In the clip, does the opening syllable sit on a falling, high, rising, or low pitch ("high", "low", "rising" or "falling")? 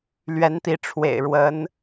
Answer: rising